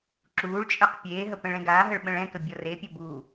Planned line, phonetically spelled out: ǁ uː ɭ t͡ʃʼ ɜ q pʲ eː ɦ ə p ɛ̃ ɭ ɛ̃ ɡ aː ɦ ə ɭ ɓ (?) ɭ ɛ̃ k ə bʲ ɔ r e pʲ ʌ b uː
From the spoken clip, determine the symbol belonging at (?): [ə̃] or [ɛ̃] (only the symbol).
ə̃